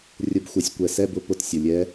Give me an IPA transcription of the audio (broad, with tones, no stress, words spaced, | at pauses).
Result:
rʲʊ˧˥bxʷə˩˥sʲkʷɛ˩˥ sɛ˧˥˧bʊ˧˥˧ pʊ˧˥tsʲʊ˩˧˩lʲɛ˧˥